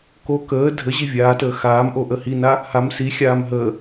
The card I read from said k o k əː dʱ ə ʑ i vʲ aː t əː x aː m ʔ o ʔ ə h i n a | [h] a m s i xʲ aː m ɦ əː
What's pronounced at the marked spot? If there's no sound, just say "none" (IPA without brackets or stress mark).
h